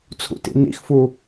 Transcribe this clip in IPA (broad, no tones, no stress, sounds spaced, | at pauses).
t͡sʰ ṵ t ḭ n ḭ x f u